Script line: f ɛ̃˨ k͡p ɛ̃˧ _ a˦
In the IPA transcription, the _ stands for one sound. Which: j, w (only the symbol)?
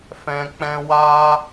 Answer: w